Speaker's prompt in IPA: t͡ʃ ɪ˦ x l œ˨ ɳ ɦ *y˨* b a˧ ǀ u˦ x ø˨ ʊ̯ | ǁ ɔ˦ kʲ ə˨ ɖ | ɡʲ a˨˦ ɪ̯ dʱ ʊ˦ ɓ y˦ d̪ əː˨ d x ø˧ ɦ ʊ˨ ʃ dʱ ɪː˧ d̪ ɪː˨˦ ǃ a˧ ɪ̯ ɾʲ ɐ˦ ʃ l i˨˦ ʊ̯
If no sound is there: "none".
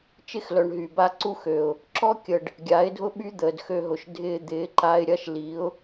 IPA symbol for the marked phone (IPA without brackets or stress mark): y˨